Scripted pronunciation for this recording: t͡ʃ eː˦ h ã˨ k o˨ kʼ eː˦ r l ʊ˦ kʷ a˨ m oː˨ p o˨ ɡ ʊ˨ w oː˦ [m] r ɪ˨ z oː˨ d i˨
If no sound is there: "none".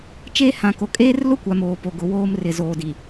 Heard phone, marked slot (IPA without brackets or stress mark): m